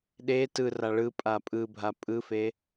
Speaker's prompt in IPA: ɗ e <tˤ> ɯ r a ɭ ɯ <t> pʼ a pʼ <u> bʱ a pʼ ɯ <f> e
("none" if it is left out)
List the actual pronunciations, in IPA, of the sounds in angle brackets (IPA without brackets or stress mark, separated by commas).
t, none, ɯ, f